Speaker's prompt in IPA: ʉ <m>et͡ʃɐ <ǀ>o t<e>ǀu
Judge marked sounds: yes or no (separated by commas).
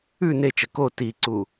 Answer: no, no, no